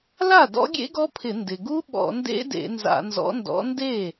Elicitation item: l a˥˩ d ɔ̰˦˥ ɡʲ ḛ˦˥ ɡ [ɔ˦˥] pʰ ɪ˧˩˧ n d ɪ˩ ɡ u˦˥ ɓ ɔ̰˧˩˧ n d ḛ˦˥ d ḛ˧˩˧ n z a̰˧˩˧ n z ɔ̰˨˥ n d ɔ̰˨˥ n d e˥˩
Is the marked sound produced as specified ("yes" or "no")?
yes